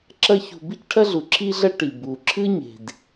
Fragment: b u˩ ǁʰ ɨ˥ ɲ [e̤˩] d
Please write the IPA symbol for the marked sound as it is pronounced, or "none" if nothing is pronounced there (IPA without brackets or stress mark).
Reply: e̤˩